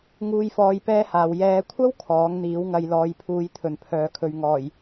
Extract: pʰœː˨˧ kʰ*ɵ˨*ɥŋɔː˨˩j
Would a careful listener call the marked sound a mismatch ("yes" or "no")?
no